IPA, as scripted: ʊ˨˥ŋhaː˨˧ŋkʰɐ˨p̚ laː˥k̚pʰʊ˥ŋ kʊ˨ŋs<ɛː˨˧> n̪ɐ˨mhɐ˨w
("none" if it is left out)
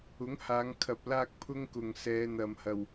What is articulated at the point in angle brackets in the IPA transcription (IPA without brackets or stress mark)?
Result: ɛː˨˧